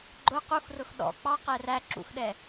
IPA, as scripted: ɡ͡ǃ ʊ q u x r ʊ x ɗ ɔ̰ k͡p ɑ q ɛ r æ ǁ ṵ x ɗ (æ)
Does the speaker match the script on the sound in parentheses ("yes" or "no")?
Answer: no